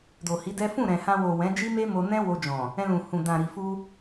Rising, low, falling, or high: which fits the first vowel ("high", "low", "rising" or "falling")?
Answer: low